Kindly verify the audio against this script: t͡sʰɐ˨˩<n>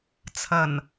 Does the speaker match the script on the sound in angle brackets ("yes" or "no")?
yes